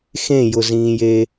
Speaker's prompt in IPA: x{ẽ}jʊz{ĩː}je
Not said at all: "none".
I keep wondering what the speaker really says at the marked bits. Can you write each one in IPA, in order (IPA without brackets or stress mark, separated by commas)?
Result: ẽ, ĩː